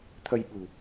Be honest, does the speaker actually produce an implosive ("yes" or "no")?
yes